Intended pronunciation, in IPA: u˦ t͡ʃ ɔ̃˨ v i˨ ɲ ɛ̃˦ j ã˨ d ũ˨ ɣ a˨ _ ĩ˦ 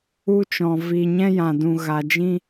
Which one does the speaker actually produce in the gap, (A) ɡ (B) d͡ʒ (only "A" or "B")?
B